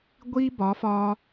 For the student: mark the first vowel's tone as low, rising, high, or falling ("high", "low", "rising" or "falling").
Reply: high